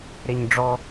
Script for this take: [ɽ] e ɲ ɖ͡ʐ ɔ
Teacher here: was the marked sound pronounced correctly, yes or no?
no